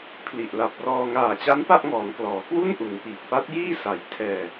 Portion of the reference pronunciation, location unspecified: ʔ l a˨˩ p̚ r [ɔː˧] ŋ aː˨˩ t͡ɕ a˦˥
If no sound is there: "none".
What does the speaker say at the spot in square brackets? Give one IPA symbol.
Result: ɔː˧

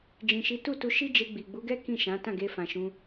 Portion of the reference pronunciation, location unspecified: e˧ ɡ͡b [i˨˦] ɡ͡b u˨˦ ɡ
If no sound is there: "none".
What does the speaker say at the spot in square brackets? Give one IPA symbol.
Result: i˨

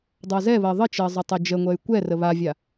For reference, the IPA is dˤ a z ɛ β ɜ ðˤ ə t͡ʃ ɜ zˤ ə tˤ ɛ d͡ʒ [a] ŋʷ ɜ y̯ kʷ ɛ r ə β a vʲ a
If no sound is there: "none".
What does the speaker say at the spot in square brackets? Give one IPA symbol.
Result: ə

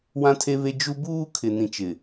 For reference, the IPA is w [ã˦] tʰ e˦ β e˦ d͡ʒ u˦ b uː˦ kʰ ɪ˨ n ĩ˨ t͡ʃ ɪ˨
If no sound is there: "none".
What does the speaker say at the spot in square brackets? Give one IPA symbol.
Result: ã˦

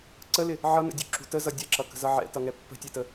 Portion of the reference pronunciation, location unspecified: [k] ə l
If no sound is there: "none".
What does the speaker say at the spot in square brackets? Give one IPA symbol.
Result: ǀ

